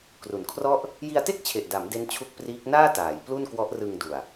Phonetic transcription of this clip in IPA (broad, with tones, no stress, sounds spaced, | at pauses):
k r u˨˩ n kʰ r ɔ˥˩ ʔ | j i˧ a̯ t e˥˩ k̚ t͡ɕʰ e˨˩ ʔ d a˩˦ m d e˦˥ n t͡ɕʰ u˦˥ k̚ p r iː˦˥ k̚ n aː˥˩ t aː˩˦ j p l u˥˩ n k w ɔ˦˥ ʔ r ɯ˧ ŋ d u˨˩ a̯